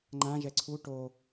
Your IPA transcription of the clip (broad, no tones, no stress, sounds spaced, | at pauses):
ŋ͡ǃ ã ʒ ɛ ǀʰ u ʈ o